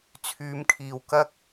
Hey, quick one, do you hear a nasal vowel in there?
no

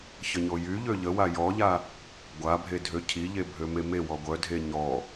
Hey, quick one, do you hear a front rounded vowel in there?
yes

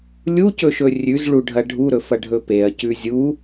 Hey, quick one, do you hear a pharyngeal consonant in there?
no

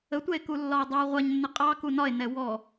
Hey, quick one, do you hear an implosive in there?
no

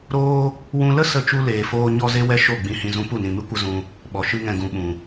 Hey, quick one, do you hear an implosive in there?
yes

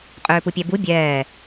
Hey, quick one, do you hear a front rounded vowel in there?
yes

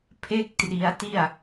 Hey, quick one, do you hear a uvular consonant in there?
no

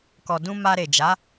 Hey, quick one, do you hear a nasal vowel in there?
yes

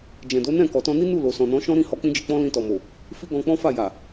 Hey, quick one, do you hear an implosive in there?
no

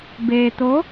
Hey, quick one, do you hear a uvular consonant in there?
no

